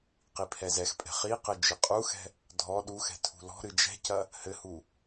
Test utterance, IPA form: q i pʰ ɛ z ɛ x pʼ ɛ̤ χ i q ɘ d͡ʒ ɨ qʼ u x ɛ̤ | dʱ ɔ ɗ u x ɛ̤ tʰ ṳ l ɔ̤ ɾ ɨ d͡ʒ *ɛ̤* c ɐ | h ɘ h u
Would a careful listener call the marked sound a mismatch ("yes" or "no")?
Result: no